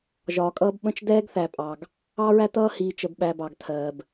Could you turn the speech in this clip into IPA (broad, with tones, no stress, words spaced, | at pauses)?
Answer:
ʒɒː˨kʼʌː˦bɓə̃˦t͡ʃ dɛː˦ɡθæ˨pʼɑ˨ɡ | ɑ˦ɹæ˦tʌː˦ hiː˨t͡ʃə˨bɓæ˨ bɑ˨ɡtʰɜː˨b